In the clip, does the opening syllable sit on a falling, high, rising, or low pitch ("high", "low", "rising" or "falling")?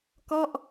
falling